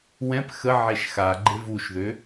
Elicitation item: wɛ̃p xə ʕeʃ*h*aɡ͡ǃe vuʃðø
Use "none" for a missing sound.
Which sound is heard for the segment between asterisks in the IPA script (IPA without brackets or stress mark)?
x